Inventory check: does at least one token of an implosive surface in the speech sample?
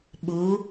yes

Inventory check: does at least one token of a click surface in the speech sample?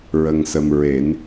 no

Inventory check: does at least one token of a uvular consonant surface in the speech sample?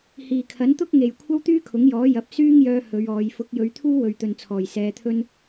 no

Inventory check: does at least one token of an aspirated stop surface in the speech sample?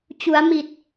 no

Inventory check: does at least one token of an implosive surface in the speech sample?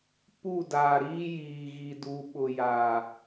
yes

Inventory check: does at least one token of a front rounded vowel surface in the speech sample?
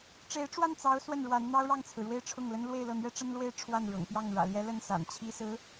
no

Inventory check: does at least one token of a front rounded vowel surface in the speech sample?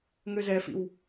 yes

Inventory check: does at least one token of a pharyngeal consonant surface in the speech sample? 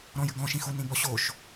no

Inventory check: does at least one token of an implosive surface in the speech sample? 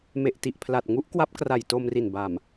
no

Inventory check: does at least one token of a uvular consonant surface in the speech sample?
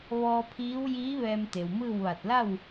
no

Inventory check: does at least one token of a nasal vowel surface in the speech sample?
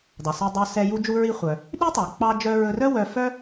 no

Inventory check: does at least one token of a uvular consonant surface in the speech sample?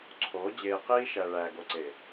yes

